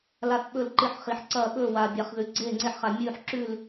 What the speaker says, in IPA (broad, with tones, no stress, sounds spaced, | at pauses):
l a˧˩ θ ɓ ɵ˧˩ l ǃ ɨ˧˩ ħ χ i˩ ħ ǀ ɐː˧˩ ɓ ɵː˧˩ w a˩ bʲ a˩ χ ð ʉ˩ ɡ͡ǀ eː˧˩ ŋ͡ǀ e˧˩ ħ χ a˩ mʲ ʉː˧˩ ħ ǁ ʉ˧˩ l